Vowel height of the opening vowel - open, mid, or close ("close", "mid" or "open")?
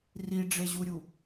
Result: close